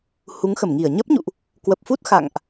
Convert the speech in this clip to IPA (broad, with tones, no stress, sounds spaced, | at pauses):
h u˨˦ ŋ x ə˧˩ m ŋ i˧˩ ə̯ ɲ ə˦˥ p̚ ɲ ṵ˧˨ ʔ | k w ə˨˩ p̚ f u˦˥ t̚ x a̰˧˨ ŋ ʔ